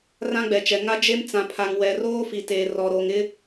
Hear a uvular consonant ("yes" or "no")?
no